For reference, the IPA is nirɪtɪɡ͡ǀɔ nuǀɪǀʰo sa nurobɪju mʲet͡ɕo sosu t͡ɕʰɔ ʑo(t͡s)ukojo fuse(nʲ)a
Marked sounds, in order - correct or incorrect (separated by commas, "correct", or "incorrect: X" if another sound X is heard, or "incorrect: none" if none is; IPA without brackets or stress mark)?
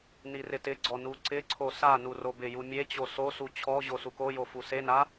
incorrect: s, incorrect: n